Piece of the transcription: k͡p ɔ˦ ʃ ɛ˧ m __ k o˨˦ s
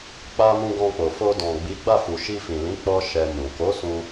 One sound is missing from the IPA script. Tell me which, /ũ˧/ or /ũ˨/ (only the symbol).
ũ˨